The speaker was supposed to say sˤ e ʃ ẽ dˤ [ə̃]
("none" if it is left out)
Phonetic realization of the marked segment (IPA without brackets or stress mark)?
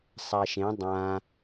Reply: ã